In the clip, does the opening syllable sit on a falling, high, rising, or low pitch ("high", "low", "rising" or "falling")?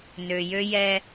low